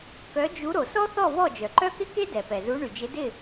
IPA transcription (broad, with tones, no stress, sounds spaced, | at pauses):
k œ˨˦ d͡ʒ u˨˦ ɾ o˩ s ɔ˥ θ ɔ˥˨ v ɔ˥˨ d͡ʒ œ˩ ǃ œ˥ k ɪ˥ k e˥ d ɛ˩ p ɛ˩ z u˨˦ ɳ y˩ d͡ʒ ɪ˨˦ d ɪ˥˨